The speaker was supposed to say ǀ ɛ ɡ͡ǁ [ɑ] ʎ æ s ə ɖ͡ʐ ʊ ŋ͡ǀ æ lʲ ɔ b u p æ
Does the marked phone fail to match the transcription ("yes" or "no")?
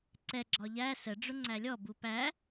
yes